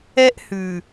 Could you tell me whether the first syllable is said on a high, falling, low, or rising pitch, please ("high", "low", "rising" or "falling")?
high